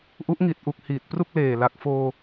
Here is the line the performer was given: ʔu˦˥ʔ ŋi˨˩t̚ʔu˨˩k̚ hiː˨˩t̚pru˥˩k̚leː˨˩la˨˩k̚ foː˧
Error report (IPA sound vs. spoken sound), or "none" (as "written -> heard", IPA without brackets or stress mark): none